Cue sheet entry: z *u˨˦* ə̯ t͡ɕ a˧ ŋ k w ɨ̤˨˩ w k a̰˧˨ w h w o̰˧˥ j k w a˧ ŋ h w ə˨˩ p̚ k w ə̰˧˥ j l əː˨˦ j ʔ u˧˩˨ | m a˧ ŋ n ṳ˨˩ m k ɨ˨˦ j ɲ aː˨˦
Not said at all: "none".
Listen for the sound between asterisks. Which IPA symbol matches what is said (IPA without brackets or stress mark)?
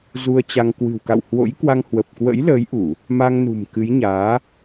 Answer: u˧